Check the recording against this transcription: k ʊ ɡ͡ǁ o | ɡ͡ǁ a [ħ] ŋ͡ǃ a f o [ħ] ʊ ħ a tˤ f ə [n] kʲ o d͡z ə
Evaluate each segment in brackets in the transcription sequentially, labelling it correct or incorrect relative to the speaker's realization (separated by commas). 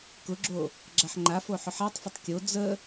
correct, correct, incorrect